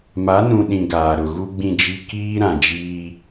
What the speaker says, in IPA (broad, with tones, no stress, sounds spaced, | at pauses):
m a˨˦ n ũ˨ ɗ ĩ˨ ɡ aː˨ ɾ ʊ˨ ɣ u˦ ɡ͡b ĩ˦˨ d͡ʒ i˦ k iː˦ ɾ ã˨ d͡ʒ iː˦